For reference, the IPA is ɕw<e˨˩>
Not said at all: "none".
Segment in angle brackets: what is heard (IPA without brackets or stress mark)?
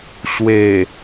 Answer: e˨˩